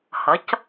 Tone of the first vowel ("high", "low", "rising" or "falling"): rising